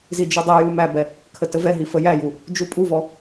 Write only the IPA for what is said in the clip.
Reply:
zid͡ʒudˤiju mæbɛ | kʰətəvɛɦi fəjæju | d͡ʒupʼuvɔ

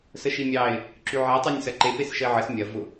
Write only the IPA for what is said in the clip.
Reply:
səʃimʲɑɪ̯ | ǁyʕɛ tˤynʲsɐǃe pesʃəɪ̯ʕəs mʲɐ vʊ

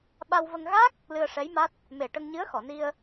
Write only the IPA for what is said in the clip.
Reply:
ɓa˧wvə˧ŋ ɣa˦˥k̚ | lɨ˧ə̯ʂɛ˧˥jma˦˥t̚ | me˨˩ʈə˧ŋɲɨ˧˥ə̯ xɔ˨˩˨ni˧ə̯

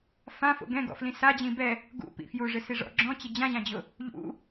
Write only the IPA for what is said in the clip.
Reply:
fãfo̰ ɡɛ̃ɡɔ̰flĩ sad͡ʑĩ bɛ | ɡṵpḭ fjuʐɪsiʐɔ̰ ɡ͡ǁɔ̃t͡ɕɪ d͡ʑãʑãd͡ʑʊ | ʎṵ

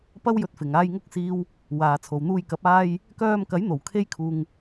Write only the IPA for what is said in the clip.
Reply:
pɐ˥wjɵ˧t̚fɪ˨ŋ aː˨jŋʊ˧k̚siː˨w | waː˨t͡sʰo˨wn̪uː˧jkɐ˨˥p̚ aː˧j | kœː˧mkɐ˨˥jn̪o˨˩w kʰe˧jkʰuː˨ŋ

